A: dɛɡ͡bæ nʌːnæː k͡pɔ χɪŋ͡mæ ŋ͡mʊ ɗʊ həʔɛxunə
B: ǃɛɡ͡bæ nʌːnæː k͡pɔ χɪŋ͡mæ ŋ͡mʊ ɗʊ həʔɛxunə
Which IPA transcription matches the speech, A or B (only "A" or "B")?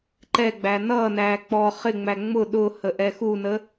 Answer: B